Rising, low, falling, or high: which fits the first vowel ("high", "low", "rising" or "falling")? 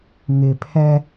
low